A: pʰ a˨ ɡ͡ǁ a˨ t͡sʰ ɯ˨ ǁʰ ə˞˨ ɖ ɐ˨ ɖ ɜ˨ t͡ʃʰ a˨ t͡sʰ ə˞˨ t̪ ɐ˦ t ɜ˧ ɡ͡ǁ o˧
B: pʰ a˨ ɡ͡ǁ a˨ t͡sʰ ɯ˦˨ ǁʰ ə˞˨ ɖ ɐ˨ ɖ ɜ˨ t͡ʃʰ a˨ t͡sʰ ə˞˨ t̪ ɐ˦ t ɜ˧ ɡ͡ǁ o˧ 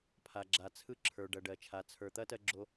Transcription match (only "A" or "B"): B